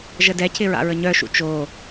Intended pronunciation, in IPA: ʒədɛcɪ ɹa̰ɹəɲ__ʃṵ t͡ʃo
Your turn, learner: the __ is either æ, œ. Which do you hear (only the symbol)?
œ